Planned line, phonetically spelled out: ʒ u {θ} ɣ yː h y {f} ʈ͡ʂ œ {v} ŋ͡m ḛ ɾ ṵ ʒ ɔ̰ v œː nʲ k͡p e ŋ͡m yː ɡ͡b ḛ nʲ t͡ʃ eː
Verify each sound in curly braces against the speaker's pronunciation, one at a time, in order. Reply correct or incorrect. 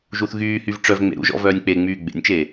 correct, incorrect, correct

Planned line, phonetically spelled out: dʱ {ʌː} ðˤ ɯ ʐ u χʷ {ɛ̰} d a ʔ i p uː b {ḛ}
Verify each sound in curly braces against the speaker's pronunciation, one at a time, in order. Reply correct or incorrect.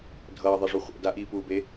correct, correct, incorrect

